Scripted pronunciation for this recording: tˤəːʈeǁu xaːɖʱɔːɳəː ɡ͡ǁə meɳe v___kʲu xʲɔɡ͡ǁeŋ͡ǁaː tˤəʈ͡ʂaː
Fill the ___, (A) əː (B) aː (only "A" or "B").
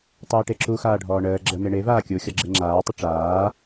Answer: B